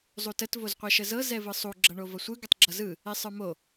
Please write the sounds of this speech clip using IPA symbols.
zˤutət vozqʷɛʃəzɤ zɛvɯsˤu ɡ͡ǁʌɳovʌsʷɯ ɡətˤɡ͡ǁʌzɯ | esˤə˞mo

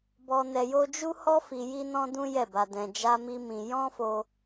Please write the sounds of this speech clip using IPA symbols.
bɔ˧nɛ˧jo˦ d͡ʒu˦hɔ˦ fi˧ji˦nɔ̃˦dũ˦ jɛ˦˨ba˧dɛ̃˧ d͡ʒa˦mi˦mĩ˧ jɔ̃˦fo˧

